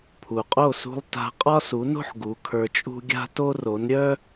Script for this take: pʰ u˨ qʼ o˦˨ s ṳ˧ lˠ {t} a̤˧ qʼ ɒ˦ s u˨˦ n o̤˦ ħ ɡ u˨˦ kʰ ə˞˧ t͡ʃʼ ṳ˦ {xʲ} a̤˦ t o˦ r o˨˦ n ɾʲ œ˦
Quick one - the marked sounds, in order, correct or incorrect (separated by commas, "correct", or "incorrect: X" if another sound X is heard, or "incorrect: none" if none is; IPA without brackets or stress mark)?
correct, incorrect: ɡʲ